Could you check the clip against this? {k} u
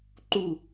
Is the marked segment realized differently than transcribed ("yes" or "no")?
yes